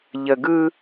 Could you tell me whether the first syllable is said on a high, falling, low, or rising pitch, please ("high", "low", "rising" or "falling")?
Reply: low